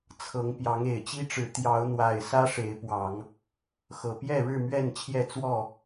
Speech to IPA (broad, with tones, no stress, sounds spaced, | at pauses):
t͡sʰ ɤ˨˦ ŋ p j ɑ˨˦ ŋ e˨˩ ɪ̯ t͡ɕ i˦ ʈ͡ʂ ɻ̩˨˦ t̪ j ɑ˨˦ ʊ̯ n̪ w a˨˩ ɪ̯ s ä˦ ʂ e˨˦ ɪ̯ p w ɑ˨˦ ŋ | x ɤ˨˩ p j ɛ˥˨ ɻ ɻ̩˥˨ m ɥ ɛ˥˨ n t͡ɕʰ j ɛ˥˨ t͡s w ɔ˥˨